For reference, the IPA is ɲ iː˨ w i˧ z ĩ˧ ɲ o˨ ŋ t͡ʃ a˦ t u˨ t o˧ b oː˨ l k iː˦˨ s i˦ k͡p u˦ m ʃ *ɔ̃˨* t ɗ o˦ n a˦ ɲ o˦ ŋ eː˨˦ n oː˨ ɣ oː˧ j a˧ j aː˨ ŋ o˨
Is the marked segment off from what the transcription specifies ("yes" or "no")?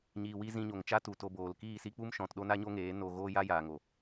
no